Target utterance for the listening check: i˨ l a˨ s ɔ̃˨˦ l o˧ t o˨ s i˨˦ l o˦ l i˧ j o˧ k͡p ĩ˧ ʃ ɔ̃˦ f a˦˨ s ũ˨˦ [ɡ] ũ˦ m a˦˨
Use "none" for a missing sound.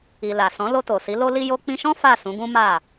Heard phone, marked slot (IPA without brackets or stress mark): ɡ